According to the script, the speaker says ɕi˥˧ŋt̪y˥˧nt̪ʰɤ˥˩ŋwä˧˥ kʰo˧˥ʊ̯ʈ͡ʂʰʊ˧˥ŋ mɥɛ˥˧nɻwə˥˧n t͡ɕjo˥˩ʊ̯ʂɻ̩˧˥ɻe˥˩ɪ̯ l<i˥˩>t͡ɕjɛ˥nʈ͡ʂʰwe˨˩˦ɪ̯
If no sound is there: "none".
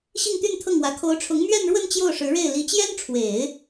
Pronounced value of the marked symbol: i˧˥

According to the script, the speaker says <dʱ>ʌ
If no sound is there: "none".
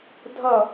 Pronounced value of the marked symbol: dʱ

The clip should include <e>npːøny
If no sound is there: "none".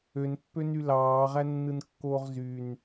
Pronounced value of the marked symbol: ø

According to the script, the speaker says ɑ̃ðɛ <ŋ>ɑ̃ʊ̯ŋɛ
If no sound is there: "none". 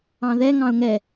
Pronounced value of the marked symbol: ŋ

